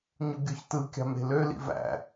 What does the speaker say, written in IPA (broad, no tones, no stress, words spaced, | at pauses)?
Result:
ɲuɡʲoçtɯkʲɑ̤m e̤lølḭ væ̰